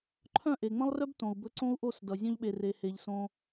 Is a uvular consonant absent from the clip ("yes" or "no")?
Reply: yes